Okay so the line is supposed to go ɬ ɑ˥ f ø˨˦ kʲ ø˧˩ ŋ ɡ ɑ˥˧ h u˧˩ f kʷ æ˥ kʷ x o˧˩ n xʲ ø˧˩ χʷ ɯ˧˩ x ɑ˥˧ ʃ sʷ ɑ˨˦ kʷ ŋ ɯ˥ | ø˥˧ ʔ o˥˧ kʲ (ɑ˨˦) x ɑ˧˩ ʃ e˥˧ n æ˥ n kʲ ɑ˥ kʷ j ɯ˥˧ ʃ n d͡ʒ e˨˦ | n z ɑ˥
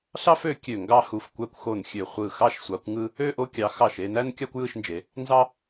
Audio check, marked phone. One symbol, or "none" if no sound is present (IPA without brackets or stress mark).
ɑ˨˦